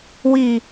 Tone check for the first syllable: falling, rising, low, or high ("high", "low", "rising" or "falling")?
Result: low